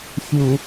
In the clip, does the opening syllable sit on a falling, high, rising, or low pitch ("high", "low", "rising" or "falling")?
low